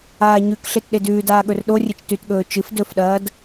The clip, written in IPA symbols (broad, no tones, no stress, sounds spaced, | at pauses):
aː ɲ ʉ k ɬ e t ɗ e d ʉː d aː ɠ ɵ r ɗ o rʲ ɨ t͡ʃ t ʉ t ɠ ɵː t͡ʃ ɨ f d ɵ f ɗ ɐː d